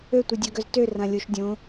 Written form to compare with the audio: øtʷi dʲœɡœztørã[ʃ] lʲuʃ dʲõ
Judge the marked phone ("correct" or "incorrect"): incorrect